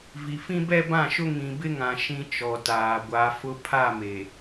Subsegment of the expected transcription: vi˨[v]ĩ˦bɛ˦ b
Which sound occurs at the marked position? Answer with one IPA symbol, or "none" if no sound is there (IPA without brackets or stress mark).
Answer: f